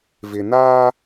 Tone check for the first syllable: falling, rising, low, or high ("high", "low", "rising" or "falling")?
low